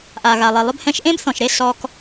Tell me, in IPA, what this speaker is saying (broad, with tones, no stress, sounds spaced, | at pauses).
ʔ a˨ ɣ a˨ lˠ e˨ lˠ ɵ˧ b h ɛ̃˧ ʃ ʔ ẽ˦ b θ ɔ̃˨ ʃ ɾ e˧ s ɔ˧ k